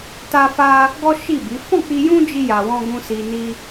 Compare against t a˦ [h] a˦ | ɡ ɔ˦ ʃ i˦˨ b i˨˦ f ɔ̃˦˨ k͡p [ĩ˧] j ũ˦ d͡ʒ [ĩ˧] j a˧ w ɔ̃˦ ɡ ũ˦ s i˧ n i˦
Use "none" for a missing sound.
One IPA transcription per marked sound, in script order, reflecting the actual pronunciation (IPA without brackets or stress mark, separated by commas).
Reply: f, i˧, i˧